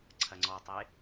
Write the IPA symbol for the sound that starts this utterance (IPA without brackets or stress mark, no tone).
ǀʰ